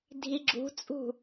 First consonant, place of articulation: alveolar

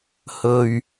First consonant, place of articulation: glottal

